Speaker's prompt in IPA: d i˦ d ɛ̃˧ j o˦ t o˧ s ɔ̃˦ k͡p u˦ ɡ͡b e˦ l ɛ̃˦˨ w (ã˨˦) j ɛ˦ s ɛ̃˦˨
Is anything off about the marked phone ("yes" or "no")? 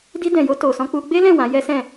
no